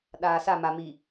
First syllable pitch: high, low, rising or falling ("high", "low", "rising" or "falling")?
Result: low